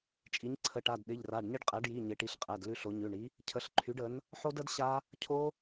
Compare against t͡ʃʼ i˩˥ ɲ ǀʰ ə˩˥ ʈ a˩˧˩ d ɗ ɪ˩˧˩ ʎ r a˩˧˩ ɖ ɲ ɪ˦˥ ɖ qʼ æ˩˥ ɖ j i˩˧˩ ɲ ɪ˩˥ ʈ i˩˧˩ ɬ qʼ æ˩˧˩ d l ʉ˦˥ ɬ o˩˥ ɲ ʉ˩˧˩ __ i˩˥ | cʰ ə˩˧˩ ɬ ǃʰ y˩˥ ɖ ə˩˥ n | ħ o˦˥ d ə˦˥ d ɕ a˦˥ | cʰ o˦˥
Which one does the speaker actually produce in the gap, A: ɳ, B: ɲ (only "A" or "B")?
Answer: A